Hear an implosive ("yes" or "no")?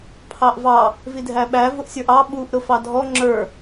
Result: yes